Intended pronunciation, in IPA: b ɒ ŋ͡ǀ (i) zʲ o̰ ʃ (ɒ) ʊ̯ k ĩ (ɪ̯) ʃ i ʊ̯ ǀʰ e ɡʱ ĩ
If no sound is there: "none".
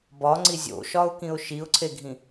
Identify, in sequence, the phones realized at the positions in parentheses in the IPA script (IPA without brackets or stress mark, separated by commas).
i, ɒ, ʊ̯